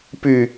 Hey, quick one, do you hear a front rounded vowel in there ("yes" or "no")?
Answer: yes